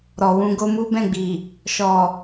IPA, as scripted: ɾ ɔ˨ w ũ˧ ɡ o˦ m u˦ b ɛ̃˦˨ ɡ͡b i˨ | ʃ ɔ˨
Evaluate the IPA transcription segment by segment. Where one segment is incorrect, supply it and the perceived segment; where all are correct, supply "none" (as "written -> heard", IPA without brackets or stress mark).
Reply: none